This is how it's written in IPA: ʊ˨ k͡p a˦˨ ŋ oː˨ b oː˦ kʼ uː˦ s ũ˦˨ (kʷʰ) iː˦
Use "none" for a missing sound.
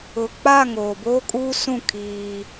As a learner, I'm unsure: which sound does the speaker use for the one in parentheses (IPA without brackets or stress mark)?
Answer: kʰ